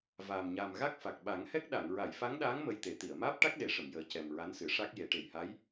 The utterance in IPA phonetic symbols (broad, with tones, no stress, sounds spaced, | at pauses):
v aː˨˩ m ɲ aː˨˩ m ɣ a˦˥ k̚ f a˨˩ k̚ ɓ a˨˩˦ ŋ h ɛ˦˥ k̚ ɗ a˨˩˨ ŋ ɹ a˨˩˨ j f a˧˥ ŋ ɗ aː˧˥ ŋ m ə˧ j t̪ e˨˩˦ t̪ i˨˩˨ ə̯ m aː˦˥ p̚ ʈ a˦˥ k̚ ɗ e˨˩˦ ʂ ə˨˩˨ m j əː˨˩ c ɛ˨˩ m ɹ a˧˥ n s ɨ˨˩˦ ʂ a˦˥ k̚ j e˨˩˦ ʈ e˨˩ j h a˧˥ j